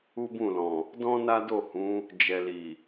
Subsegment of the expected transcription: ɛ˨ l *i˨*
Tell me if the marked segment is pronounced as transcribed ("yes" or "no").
yes